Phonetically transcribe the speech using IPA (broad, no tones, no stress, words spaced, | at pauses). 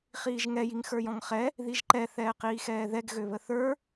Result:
χiːʒŋɛ jiŋxə˞jɔ̃ŋχɛ | ðiʒǃɛ θɛːqiːxɛːðɛɡ ɣøβəθə˞